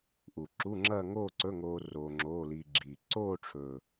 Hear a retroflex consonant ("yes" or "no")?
yes